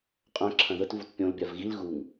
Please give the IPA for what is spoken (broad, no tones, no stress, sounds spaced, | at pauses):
qʼ œ̃ ǁʰ ɐ̃ ð ə t v u t pʲ õ l bʲ a v ɣ i l ɣ u ŋ